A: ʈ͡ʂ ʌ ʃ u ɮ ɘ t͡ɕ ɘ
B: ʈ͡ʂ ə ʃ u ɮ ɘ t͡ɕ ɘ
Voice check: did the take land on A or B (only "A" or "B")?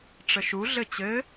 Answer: B